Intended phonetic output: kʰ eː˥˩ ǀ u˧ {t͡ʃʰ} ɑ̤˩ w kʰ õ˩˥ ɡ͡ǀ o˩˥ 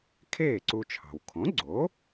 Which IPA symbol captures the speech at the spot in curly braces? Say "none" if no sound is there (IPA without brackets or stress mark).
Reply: t͡ʃʰ